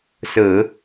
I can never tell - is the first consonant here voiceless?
yes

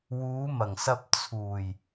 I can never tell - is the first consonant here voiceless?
no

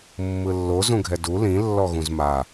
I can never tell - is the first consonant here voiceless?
no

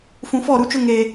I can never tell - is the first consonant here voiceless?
yes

